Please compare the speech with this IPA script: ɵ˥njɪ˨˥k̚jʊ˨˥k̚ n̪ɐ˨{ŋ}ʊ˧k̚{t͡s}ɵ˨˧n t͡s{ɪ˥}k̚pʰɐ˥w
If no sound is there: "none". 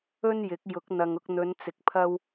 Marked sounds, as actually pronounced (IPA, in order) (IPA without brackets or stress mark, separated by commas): ŋ, n̪, ɪ˨